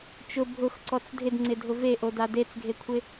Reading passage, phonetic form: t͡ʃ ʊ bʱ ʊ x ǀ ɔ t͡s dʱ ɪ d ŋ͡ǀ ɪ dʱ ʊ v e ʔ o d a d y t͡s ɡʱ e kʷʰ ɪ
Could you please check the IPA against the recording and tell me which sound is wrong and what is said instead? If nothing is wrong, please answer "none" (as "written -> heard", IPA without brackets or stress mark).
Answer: y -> e